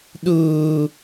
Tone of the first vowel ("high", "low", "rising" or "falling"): low